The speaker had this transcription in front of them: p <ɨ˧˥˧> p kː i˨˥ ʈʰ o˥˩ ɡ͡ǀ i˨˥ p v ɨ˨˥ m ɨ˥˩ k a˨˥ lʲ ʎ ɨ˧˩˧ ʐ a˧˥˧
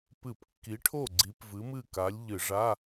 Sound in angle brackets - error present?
yes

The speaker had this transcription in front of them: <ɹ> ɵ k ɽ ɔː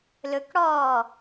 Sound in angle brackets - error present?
yes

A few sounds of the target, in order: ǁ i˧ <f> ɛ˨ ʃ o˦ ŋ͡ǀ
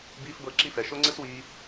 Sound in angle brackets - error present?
no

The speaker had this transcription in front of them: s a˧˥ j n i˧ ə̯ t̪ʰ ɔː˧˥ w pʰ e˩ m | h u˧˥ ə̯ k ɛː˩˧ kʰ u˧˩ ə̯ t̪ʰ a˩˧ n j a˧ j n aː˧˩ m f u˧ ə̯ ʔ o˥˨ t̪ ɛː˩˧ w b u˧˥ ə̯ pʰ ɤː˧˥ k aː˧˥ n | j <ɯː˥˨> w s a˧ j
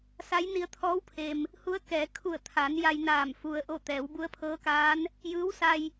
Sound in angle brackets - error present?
yes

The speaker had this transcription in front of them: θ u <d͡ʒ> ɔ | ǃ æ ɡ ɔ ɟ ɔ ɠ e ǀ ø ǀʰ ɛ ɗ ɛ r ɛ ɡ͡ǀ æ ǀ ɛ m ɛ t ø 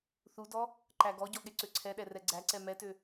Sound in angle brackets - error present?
yes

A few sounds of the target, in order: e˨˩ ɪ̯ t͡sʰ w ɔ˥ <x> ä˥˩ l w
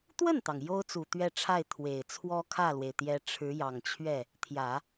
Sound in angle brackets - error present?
yes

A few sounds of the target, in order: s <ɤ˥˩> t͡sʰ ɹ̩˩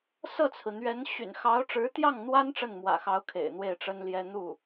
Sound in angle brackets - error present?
no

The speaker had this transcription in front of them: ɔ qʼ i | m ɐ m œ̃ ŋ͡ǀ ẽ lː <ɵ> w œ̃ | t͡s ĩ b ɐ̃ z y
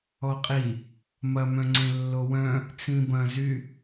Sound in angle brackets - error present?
yes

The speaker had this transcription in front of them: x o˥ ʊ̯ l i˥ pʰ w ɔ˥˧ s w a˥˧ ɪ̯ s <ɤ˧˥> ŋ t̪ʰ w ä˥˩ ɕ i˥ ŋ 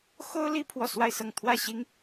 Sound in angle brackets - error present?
yes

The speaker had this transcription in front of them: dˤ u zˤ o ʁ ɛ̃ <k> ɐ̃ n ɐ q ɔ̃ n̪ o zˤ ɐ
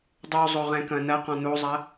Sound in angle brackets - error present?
no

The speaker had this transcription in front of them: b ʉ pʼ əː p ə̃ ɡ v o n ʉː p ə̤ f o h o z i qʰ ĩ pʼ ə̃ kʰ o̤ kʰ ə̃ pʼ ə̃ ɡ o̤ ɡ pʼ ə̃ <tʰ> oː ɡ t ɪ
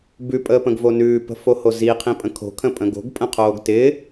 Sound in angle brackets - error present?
yes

